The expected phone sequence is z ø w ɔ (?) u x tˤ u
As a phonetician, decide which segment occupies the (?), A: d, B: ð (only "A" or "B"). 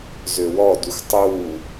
A